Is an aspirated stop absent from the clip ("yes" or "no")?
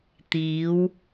yes